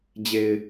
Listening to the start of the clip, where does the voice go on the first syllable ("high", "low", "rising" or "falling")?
low